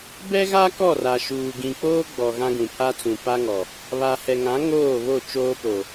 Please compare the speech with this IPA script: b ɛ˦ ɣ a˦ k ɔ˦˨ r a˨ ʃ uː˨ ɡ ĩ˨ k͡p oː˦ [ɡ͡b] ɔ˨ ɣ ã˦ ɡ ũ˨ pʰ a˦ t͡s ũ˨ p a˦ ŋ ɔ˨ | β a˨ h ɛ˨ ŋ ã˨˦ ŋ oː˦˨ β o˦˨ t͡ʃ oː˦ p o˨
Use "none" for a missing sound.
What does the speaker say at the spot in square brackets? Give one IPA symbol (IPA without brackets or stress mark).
ɡ͡b